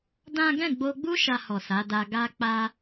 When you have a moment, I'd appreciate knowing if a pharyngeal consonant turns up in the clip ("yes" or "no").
no